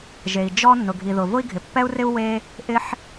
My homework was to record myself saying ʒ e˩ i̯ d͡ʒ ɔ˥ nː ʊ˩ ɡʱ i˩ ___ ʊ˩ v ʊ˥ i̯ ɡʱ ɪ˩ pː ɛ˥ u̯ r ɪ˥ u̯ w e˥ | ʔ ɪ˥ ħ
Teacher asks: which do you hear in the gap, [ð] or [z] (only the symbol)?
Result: ð